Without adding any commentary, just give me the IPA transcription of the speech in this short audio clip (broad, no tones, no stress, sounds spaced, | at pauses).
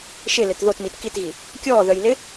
ʃ ɪ l ɪ t ð o t m i t k i t ɣ i | kʲ ɔː ð œ j l ɪː